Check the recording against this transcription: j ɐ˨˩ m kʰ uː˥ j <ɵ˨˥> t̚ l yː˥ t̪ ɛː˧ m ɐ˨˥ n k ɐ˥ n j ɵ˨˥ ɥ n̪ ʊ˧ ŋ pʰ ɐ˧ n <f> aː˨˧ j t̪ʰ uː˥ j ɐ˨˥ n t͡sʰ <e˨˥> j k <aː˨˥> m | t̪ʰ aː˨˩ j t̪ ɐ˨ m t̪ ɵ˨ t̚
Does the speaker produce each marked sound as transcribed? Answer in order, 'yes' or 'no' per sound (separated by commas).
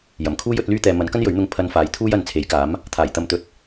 yes, yes, yes, yes